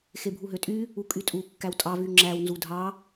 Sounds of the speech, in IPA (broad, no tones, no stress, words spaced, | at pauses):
xebʱuɦøtʼy | ukʼytʼu kːæwtʼɑ vyŋ͡ǁæw nzudʱɑ